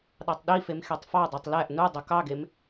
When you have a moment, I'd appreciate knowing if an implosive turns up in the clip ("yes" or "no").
yes